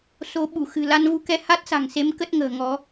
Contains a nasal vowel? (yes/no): no